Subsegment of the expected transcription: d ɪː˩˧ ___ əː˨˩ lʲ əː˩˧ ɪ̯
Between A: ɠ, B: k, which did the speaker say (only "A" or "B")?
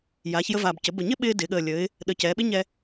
A